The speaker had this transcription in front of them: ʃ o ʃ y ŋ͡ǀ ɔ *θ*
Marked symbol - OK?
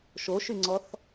yes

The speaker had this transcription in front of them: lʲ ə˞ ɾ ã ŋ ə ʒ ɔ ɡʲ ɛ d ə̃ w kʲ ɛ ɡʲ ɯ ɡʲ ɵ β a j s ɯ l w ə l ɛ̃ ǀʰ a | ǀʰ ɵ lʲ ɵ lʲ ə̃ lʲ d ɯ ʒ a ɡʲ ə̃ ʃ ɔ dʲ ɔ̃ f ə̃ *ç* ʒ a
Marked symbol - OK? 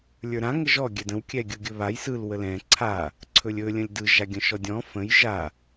no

